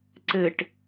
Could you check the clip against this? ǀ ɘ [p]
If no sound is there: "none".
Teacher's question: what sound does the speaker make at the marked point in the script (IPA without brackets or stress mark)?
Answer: ʈ